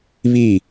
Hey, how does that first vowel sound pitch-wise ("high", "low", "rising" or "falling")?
falling